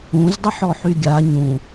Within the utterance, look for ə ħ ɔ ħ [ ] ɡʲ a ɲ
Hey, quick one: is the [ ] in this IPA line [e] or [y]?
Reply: y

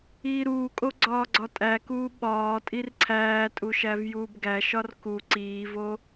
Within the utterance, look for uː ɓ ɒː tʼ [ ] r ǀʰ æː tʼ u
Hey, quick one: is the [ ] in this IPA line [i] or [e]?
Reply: i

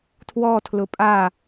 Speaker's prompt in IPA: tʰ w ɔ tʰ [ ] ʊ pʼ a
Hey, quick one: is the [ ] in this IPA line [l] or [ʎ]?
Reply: l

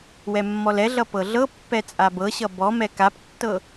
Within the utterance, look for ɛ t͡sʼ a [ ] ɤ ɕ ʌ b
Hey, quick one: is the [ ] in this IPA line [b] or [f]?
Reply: b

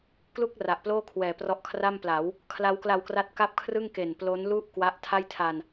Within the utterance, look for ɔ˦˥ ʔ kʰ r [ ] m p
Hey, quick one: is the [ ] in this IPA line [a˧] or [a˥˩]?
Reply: a˥˩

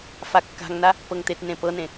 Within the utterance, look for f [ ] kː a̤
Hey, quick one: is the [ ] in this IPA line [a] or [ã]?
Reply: a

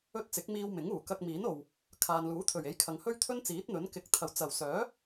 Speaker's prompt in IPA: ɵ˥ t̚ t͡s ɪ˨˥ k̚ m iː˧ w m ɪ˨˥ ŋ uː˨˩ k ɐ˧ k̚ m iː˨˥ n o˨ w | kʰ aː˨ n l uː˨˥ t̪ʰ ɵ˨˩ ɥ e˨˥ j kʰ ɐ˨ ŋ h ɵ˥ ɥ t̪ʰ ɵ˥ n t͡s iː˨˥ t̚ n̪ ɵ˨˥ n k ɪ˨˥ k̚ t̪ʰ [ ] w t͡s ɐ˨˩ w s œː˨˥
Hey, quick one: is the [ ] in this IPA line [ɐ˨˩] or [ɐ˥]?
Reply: ɐ˨˩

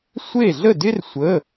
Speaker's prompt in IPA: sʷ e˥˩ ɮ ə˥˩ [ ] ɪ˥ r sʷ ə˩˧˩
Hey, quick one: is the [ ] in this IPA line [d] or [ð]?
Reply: d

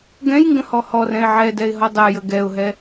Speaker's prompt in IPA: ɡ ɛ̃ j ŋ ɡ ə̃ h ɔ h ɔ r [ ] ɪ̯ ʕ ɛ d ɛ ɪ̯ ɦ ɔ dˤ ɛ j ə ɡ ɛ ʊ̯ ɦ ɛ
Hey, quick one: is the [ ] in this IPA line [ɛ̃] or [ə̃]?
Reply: ɛ̃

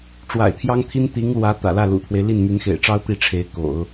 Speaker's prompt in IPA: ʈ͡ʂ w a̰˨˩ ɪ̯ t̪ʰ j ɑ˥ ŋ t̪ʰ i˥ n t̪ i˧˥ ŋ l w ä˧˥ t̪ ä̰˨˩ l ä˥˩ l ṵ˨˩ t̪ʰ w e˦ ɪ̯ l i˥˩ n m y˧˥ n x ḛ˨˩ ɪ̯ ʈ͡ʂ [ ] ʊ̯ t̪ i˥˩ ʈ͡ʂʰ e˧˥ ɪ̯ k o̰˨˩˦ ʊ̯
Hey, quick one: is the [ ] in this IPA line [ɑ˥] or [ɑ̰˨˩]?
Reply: ɑ˥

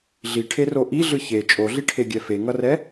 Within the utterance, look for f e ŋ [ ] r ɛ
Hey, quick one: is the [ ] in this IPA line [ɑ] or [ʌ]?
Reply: ʌ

